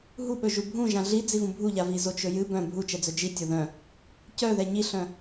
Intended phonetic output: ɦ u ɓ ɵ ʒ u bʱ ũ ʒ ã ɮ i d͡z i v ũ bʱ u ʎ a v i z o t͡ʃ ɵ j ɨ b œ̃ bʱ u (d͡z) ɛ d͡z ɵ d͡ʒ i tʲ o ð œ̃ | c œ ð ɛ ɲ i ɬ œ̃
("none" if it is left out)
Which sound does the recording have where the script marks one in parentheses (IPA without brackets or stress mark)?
t͡ʃ